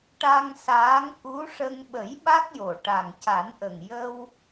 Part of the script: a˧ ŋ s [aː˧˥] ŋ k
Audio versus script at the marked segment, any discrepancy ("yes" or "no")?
no